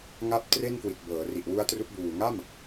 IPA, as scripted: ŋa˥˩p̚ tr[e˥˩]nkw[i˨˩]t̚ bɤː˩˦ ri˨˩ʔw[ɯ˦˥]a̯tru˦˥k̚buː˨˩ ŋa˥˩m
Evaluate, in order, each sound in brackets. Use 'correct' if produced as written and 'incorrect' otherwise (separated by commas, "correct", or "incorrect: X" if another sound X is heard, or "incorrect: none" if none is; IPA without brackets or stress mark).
correct, correct, incorrect: u˦˥